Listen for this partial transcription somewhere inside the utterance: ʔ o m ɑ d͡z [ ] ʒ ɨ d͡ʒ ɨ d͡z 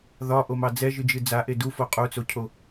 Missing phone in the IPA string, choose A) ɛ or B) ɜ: A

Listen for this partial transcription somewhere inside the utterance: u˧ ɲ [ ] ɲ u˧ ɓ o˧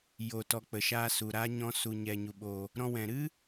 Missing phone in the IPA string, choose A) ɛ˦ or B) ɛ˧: B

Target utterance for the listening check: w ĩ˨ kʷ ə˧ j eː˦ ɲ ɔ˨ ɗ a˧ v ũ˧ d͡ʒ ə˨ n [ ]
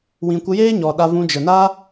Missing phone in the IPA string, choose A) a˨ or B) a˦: B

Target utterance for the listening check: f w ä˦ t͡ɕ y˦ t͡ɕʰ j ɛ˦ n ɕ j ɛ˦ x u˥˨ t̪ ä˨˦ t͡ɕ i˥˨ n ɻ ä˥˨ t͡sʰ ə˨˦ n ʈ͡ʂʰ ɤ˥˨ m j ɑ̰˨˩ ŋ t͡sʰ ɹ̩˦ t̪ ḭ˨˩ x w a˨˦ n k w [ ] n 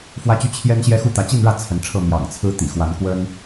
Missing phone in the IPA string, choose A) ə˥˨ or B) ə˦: B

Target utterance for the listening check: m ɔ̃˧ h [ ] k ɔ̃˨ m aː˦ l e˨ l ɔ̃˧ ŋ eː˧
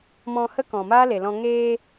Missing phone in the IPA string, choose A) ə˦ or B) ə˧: A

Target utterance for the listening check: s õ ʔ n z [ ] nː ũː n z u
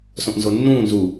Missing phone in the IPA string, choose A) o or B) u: A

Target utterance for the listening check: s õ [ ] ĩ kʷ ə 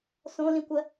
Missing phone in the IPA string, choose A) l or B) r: A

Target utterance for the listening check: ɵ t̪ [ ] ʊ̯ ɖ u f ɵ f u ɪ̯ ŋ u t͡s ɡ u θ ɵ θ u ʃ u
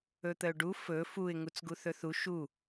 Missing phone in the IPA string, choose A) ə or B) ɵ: A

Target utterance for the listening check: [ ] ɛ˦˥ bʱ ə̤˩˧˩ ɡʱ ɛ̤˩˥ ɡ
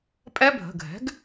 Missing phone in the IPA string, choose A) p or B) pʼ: B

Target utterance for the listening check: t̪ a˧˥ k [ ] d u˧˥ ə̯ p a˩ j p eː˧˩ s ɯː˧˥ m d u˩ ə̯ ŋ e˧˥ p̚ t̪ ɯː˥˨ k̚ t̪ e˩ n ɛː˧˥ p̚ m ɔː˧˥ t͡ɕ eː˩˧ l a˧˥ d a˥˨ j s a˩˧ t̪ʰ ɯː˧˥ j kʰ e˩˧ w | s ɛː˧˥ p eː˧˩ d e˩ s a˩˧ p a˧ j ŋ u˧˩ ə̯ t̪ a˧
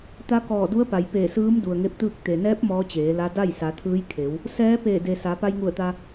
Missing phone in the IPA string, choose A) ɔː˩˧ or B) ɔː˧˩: B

